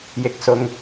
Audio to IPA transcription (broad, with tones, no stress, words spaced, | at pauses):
jɪ˨˥k̚sʊ˨ŋ